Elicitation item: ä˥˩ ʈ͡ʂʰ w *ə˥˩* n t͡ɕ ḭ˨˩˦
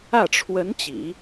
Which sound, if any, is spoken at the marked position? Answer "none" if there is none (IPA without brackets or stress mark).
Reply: ə˧˥